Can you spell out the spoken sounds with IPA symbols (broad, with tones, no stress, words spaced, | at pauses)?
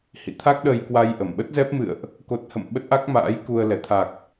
hḭ˧˨t̪ʰa˦˥k̚ ɗə˧jkwa˧jʔə˧˩m ɓə˦˥t̚zɛ˦˥p̚mɨ̰˧˨ə̯ʔ | ko˨˩t̚hə̰˧˨m ɓə˦˥t̚ʔa˦˥k̚ma̰ː˧˥j ku˧ə̯ lɛ˧˩t̪ʰa˨˩k̚